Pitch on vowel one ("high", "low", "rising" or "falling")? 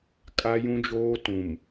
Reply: high